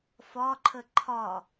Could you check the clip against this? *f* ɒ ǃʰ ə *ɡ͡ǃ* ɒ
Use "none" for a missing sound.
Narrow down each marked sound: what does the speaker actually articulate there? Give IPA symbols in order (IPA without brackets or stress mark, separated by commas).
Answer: f, ǃʰ